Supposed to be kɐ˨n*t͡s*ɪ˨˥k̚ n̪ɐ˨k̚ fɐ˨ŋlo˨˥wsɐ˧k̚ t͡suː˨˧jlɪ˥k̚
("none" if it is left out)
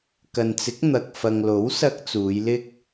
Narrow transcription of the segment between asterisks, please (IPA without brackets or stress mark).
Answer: t͡s